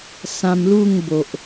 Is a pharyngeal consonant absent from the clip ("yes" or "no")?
yes